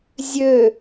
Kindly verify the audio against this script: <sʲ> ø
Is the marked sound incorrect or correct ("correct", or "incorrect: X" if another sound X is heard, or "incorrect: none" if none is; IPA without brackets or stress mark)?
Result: incorrect: zʲ